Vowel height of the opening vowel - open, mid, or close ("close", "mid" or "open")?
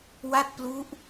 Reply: open